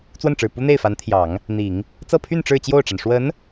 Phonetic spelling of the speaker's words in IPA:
t͡swə˥˩nʈ͡ʂɻ̩˨˩ pu˥n̪e˥˩ɪ̯fa˧˥n t̪ʰjɑ˨˩˦ŋ | n̪i˨˩˦ŋ | t͡sɤ˥˧pʰy˥˧n ʈ͡ʂɻ̩˥˧t͡ɕjo˥˩ʊ̯ʈ͡ʂa˩n ʂwə˧˥n

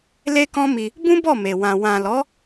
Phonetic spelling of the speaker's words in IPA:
le˦kɔ̃˦mi˧ | bũ˦bɔ˦˨me˨ wã˨ wã˨lɔ˨˦

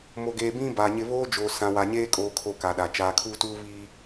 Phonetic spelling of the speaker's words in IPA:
mo˨ɡeː˨bĩ˦ ba˨ɲɪ˦ βoː˦d͡ʒoː˨ sã˨wa˨ɲeː˦ kʼoː˦kʰo˦˨ka˨ɗa˨ t͡ʃaː˨kʰuː˦tuː˦ βi˦

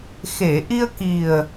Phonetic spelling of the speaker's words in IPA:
xe˨˩˨ʔi˧ə̯ki˨˩ə̯

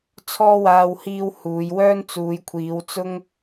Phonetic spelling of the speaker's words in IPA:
t͡sʰɔː˥waː˧whiː˧w huː˨˧jwœː˥nt͡suː˨˧j kʷʰiː˨˧wt͡sʊ˥ŋ

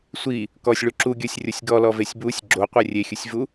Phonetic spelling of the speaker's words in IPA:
sʷi | kɔsʲɭu ǁuɡʲɔsʲrʲosʲ ɡɔlɔvesʲ busʲ ɡ͡ǁoqʷɪ rʲexʲʊsʲvu

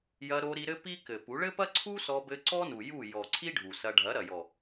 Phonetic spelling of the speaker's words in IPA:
jɐ˧ ɾo˧ɾi˧ɾɘ˦ pi˦ kɘ˨pu˨˦ ɭɘ˦pɐ˦ǀʰu˦ sɔ˧bɘ˧ǀɔ˦nu˨ ju˦˨ jɔ˨ ǀʰi˦ ɖʱu˨sɐ˧ ɖʱɐ˨˦ɾɐ˨jɔ˨

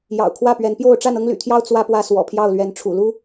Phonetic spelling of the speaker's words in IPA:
jɑ̰˨˩ʊ̯kʰwä˥˨pɥɛ˨˦npjo˥˨ʊ̯ ʈ͡ʂa˥˨nɤ˦ŋly̰˨˩t̪ʰjɑ˦ʊ̯ t͡swä˦pwä˦ swɔ̰˨˩pʰjɑ˥˨ʊ̯lɥɛ˨˦n ʈ͡ʂʰṵ˨˩lu˦

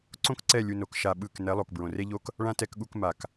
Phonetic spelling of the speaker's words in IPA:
ǀõ˦kǀɛ˦˨ lʲu˧no˨˦k ʃa˧ɓɯ˦˨k nɛ˨˦lˠo˨k bɹõ˨re˦ʎo˦k | ɭã˦tɛ˧kɠu˧k ma˨k

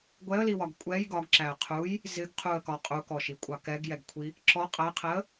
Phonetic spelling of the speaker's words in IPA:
ɡʷɛə̯liwɒɡ kʷʼɛj ɡɒɡǁæə̯ qʰuj | zɪɡ qʰuə̯kɒ qʼukɔʃikʷʼɑ kɛɡjɛɡkʷʰi | ǁɔ qʼæqʰɛə̯

